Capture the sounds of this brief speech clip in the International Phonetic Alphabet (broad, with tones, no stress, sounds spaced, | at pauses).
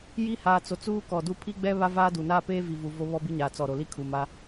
j i˦ h aː˨ t͡s o˨ t͡s uː˦ k ɔ˨ d u˦ pʰ i˦ ɡ͡b ɛ˦ β a˦ v aː˦ d u˨ n aː˦ p eː˦ v i˨ v u˨ v o˦ β ɔ˦ b i˦ ɲ aː˨ t͡s ɔ˨ ɾ o˨ l i˦ kʰ uː˨ m a˦